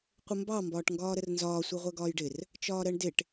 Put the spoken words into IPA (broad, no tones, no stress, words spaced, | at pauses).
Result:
qʷəmbɑ mbɒːʈŋɡɒːɾərnzɒː sʷɛʁʷɜɡɒːjɖɪr | t͡ʃɒːɾɜɳdɪʈ